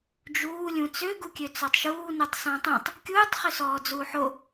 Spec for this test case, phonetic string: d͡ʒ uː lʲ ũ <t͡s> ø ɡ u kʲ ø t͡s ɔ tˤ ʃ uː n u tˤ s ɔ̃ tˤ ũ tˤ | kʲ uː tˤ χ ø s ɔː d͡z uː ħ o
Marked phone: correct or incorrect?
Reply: correct